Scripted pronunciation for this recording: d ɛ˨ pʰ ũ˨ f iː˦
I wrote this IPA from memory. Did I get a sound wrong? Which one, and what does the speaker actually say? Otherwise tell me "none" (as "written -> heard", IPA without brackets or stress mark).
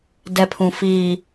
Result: none